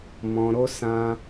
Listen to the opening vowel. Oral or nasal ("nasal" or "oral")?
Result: nasal